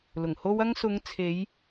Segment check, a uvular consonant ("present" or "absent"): absent